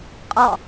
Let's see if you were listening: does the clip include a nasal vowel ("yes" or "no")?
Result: no